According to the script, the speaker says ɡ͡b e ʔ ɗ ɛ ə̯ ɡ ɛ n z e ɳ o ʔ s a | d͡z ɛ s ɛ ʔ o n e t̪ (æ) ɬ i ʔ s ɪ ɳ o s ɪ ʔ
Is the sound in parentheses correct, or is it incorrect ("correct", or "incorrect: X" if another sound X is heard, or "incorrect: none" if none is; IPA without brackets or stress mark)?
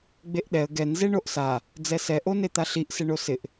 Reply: incorrect: a